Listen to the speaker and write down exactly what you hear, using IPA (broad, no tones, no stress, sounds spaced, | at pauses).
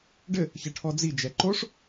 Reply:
ɖ ɘ | ç ɐ ʈʰ ɔ d͡z i d͡ʒ ɛ ǃ o ʂ